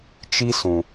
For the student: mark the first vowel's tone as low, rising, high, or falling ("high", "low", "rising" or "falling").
high